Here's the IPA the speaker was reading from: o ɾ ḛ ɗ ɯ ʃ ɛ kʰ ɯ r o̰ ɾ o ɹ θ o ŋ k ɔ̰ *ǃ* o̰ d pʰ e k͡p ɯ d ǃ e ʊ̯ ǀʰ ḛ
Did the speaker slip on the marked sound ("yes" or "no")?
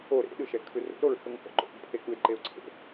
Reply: no